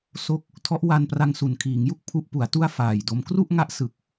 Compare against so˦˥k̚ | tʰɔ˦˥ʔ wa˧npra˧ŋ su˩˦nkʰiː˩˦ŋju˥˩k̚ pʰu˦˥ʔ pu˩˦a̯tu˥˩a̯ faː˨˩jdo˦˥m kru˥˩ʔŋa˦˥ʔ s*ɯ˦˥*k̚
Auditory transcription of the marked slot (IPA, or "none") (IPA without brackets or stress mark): ɯ˨˩